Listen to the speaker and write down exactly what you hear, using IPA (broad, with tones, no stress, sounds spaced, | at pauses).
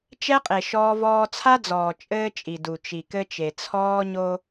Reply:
t͡ʃ ɛ˦ qʼ e˨ ʃ ɔː˦ v ɔː˦ t͡sʰ a˦ d͡z ɔː˨ t͡ʃʼ ɘː˦ t͡ʃʼ i˨ d u˨ t͡ʃ i˨ k ɘ˦ t͡ʃ e˨ t͡sʰ ɔː˦ ɲ o˦